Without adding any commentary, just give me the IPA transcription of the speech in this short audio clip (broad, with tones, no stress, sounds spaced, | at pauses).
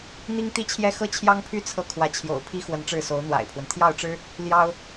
n̪ i˥ ŋ t̪ i˥ t͡ɕʰ j ɛ˥ x ɤ˥˩ t͡ɕʰ j ɑ˥ ŋ pʰ y˥ t͡sʰ ɤ˥˩ kʰ w ä˧˥ t͡ɕʰ j o̰˨˩ ʊ̯ pʰ i˥ x w ə˧˥ n ʈ͡ʂ ɻ̩˥˩ s o˧˥ ʊ̯ n̪ w a̰˨˩ ɪ̯ pʰ w ə˦ n t̪ʰ j ɑ˥˩ ʊ̯ ʈ͡ʂ ɻ̩˥ | l j ɑ˥ ʊ̯